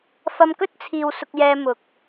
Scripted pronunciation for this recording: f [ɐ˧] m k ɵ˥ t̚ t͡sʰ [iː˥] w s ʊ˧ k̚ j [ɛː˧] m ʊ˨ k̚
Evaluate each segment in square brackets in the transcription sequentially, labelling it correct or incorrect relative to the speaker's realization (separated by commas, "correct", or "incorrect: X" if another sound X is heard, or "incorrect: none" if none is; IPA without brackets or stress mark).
correct, incorrect: iː˨, correct